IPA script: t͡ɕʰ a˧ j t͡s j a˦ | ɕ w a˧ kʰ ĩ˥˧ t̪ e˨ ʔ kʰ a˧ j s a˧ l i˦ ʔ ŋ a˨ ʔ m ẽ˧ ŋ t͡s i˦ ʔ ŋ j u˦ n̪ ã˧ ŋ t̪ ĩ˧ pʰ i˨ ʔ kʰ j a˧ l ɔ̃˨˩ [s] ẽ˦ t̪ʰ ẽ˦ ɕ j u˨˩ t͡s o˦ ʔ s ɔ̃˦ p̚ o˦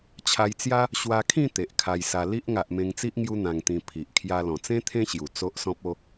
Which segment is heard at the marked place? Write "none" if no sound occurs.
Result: t͡s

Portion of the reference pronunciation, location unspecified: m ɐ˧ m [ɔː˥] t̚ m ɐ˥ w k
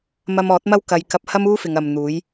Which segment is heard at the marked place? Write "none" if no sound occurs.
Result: ɔː˨˥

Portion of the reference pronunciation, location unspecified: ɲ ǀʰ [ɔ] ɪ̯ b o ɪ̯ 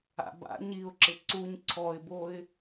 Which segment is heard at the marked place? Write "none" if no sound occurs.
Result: ɔ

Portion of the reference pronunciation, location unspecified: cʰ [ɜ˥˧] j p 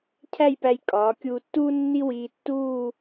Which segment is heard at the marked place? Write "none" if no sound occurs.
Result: æ˥˧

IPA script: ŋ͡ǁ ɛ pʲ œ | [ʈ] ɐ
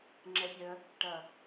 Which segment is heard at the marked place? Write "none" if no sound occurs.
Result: ʈ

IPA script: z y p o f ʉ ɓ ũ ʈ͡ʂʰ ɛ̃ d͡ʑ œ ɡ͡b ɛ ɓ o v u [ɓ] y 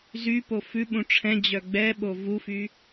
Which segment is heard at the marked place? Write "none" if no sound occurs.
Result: f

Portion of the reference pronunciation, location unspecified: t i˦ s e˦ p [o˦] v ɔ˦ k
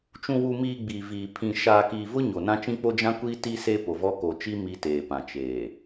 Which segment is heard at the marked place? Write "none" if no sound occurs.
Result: o˨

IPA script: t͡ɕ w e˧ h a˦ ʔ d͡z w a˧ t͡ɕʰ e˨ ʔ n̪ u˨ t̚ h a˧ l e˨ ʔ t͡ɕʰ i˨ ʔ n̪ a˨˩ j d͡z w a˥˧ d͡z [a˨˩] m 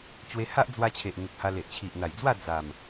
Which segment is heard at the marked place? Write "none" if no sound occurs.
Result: a˨˩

